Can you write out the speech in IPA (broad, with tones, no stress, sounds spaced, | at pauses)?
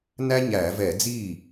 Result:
n æ˥ ɲ æ˧˩˧ v ɛ˧˩˧ d͡z i˥˩